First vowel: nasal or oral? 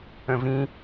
nasal